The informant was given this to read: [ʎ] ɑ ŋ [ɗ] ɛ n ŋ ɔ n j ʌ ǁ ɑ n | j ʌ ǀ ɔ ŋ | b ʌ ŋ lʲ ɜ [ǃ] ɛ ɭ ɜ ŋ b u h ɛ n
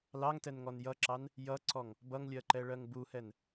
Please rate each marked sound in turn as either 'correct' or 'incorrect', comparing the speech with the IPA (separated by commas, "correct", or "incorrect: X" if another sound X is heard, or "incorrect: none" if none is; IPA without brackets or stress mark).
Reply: incorrect: l, incorrect: t, correct